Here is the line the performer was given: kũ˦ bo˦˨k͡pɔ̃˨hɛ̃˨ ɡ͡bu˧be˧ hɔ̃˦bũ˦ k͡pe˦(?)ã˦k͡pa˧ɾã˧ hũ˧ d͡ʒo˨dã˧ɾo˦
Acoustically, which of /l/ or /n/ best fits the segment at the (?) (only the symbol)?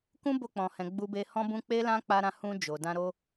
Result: l